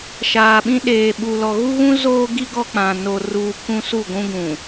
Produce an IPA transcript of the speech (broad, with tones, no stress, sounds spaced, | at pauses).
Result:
ʃ aː˨ ɓ ĩ˦ ɗ eː˨ ɓ u˨ l ɔ˨ ɣ u˦ ɣ ũ˦ z oː˦ ɡ i˦ ɡ ɔ˦ k͡p ã˨ n o˨ r uː˨ k ũ˦ s u˦˨ ɡʷ ũ˦ ɡ ũ˨